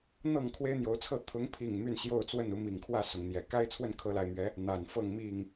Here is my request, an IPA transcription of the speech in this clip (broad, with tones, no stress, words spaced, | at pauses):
n̪ɤ˥˨ŋkʰwe˦ɪ̯n̪jo˨˦ʊ̯t͡sʰɤ˥˨ t̪ʰʊ˨˦ŋpʰi˨˩ŋ my˥˨nɕjo˥˨ʊ̯t͡swə˥˨n u˨˦mi˨˩ŋkʰwä˥˨ sʊ˨˦ŋn̪jɛ˨˩ ka˦ɪ̯ t͡sʰwə˥˨nkʰɤ˨˦la˨˩ɪ̯mɥɛ˨˦ | n̪a˨˩n fɤ˥˨ŋmi˥˨ŋ